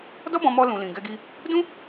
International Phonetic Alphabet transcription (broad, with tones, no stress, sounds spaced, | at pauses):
d ɔ˦ b ɔ̃˧ m ɔ˧ l ũ˨ l ĩ˨ ɡ ɛ˧ ɡ i˧ | d ũ˦